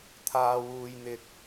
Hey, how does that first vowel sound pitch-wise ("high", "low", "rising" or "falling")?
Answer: high